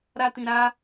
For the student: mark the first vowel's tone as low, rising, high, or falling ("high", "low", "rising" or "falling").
high